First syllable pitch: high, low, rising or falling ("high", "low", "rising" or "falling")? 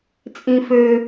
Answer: high